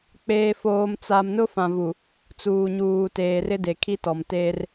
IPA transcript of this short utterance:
k͡p eː˦ f oː˦ m t͡s a˦ m n ʊ˦ f ã˨ v u˨ | t͡s uː˨ ɲ uː˨ t eː˨ r ɪ˦ d e˨ kʰ i˦ t ɔ˨ m t eː˦ r

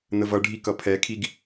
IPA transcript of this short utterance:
n ə v ʌ ɖʱ i k ʌ pʰ ɛ kʰ i ɡ

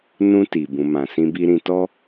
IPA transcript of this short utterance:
n ũ˧ t i˨ b ũ˨ m ã˨ s ĩ˧ b i˧ ɾ ĩ˧ t ɔ˦

